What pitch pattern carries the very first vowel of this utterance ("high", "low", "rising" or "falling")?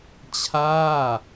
falling